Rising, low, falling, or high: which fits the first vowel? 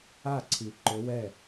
falling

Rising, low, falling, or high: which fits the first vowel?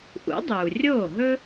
rising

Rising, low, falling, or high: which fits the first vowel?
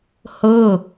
falling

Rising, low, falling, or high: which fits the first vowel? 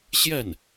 falling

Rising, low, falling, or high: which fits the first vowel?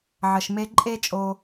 low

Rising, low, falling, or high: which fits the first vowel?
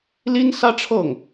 high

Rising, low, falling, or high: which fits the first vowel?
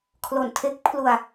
low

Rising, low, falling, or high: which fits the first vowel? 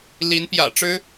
rising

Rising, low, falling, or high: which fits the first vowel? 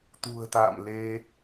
low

